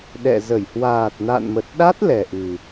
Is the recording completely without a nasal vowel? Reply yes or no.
yes